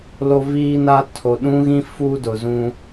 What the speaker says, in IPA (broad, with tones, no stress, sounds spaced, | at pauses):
l o˦ v iː˦ n a˦ tʰ o˨ ɗ ũ˦ ɣ ĩ˦ f u˦ d ʊ˨ z ũ˦